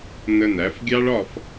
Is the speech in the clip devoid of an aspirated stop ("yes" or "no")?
yes